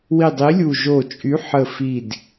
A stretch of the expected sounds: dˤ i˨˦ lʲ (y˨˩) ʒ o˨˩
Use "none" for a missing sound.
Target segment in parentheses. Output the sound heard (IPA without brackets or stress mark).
u˨˩